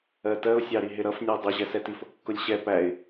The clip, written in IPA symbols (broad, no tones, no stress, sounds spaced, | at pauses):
ɜ t ɜ ʊ̯ sʲ ɑ ɾ i ɦ ɪ ɾ ʌ f nʲ ɜ dˤ ʌ ʑ ɛ s ɛ t i f ʊ kː ʊ lʲ ɕ ɛ p æ ɪ̯